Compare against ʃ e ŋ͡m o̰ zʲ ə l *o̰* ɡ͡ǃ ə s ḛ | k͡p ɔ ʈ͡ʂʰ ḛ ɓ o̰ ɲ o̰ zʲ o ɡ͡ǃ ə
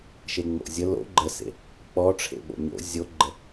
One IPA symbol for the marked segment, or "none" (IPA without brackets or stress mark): o̰